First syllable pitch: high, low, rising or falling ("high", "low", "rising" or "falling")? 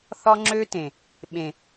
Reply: high